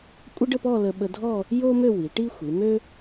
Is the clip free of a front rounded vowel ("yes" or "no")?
no